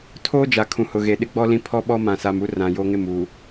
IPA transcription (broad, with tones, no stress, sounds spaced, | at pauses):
tʰ oː˦ d͡ʒ a˨ kʰ ũ˨ h ʊ˨ ɣ e˨ ɗ ɪ˦ ɡ͡b ɔ˦ l ĩ˦ pʰ ɔ˦ ɓ ɔ˦ m ã˨ s a˨ m u˦ r ã˨ j o˦ ŋ ɪ˦˨ m u˨